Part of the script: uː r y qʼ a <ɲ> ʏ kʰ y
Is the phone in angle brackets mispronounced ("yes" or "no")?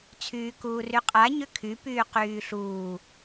no